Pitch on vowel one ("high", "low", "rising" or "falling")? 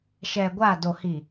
low